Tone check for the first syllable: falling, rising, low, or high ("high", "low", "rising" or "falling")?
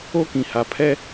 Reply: high